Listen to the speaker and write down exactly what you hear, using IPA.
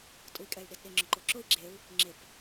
tʼui̯kʼɛy̯ɗɪdɗɪ ŋ͡ǁʊǃoǁʊi̯ ɡ͡ǁeu̯ | ŋ͡ǁɪp

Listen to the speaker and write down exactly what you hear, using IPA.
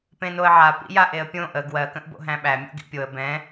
pẽnoə̯ʕa pḭjaʔeə̯pʲõ ʔə ɡwɜ kə̃ʔbo̰ɦæ̃ɓæ mʲo̰ɡḭpʲoə̯ bɛ̃

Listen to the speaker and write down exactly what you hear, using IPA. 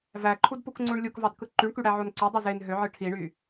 væǃʰudpukŋ͡ǀuɳ lʲukvɑdkɯ ǃyɳkyɽæʕon ǀodˤi zen ɦøʕɯ ʈʰiɳy

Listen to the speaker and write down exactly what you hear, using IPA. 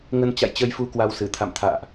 ŋə˧nt͡ɕa̰˧˨jt͡ɕə˧jfu˨˦ kwa˧wsɨ˧˩t̪ʰa̰˧˨mt̪ʰa̰ː˧˨ʔ

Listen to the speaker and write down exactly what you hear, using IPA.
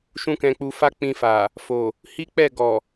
ʃũ˦kɛ̃˧k͡pu˧ fa˦k͡pĩ˧fa˨ | fo˨ | hi˦k͡pɛ˦˨ ɡɔ˨

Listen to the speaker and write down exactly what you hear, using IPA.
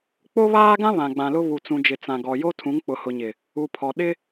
k͡po˦βaː˦ɡã˦ βã˨ɡ͡bã˨lʊ˦ βu˨t͡sũ˨d͡ʒɪ˨ t͡sã˨ɡɔ˨ jo˦ tʰũ˨˦ŋk͡pʊ˨hʊ˨ɲɪ˨ | u˨pʰɔ˨ ɗɪ˦

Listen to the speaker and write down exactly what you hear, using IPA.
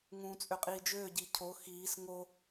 ŋũːt͡sʼøqʼiːd͡ʒøː ɟicʰo xiːs ŋo

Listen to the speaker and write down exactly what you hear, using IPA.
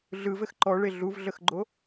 ɮɯ vɘxǃɔɭe ɮuvɮəxɡ͡ǃo

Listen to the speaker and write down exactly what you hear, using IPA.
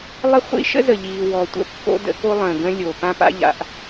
lˠə˥χʷḭ˥ ʃə̰˥zə˩ʎiː˩ wɔ˩tʷə̰˥ pːo̰˥də̰˥ ko˥lˠə̃ː˩ ɡə̃˥lʲo˩ pã˥pa̰˥ʎa̰˩ʔ

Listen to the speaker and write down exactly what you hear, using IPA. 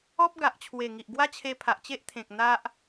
ɔ˦p̚ɡa˨ʔt͡ɕʰwe˨˩ ŋi˨ʔɡwa˦t͡ɕʰe˧pʰa˨ʔ t͡ɕe˦ʔt̪ʰẽ˨k̚ n̪a˦ʔ

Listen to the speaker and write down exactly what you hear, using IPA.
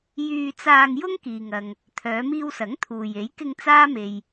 jyː˧t͡saː˧ŋ jʊ˥ŋ kiː˨ŋɐ˨ŋ | t̪ʰœː˨˧miː˧wsɐ˨˥ŋ t̪ʰuː˨je˨˥jkɪ˧ŋ t͡saː˥ me˨j

